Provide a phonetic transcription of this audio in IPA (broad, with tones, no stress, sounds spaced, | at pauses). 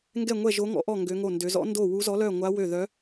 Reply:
ŋ ɡ ɛ˥˨ ŋʷ ɛ˥˨ ʒ o˧˥ ŋ ɔ̰˧˥ ʔ ɔ˥˨ ŋ ɡ ø˧˥ ŋ o˥˨ n d ø˧˥ z ɔ̰˧˥ n d o˥˨ w u˧˥ z ɔ˧˥ l œ˥˨ ŋʷ a˧˥ w ø˥˨ ð œ˧˥